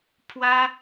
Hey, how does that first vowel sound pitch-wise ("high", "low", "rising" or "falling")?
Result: high